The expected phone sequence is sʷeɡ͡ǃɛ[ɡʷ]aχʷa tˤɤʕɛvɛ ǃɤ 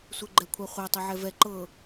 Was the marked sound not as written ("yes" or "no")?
yes